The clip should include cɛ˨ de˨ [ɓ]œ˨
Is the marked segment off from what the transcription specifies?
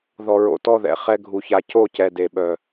no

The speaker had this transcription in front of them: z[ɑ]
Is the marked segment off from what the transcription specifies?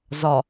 yes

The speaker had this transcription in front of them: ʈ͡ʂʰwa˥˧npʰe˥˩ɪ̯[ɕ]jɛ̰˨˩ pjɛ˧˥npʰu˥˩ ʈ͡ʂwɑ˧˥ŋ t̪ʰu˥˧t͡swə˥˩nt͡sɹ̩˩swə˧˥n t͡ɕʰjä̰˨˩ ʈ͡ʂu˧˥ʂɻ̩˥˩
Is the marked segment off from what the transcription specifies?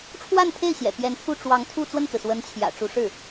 no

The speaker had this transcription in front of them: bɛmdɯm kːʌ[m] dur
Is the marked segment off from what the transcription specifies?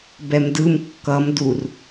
no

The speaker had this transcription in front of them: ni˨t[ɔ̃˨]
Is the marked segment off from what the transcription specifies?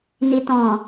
no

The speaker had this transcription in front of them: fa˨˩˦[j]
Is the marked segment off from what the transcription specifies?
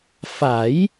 no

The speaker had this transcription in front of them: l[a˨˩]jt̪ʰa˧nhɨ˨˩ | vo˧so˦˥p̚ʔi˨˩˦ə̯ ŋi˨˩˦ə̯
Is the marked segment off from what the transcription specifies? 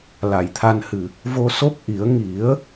no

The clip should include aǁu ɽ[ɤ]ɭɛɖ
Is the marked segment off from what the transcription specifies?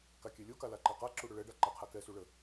yes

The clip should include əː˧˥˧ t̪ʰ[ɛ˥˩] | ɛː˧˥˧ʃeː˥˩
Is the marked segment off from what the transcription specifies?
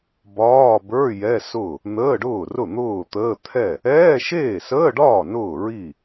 no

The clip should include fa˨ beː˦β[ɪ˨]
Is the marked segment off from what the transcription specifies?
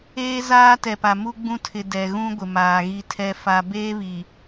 yes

